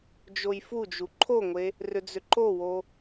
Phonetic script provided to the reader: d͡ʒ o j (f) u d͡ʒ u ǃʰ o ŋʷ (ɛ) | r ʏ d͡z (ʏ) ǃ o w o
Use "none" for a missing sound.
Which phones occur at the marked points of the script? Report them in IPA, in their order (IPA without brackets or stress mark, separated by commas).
f, e, ʏ